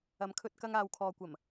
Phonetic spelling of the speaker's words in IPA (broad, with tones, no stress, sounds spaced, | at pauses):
ɐ˨˧ m kʰ ɵ˧ t̚ k ɐ˧ ŋ aː˨ w kʰ ɔː˨ kʷ ɐ˨˩ m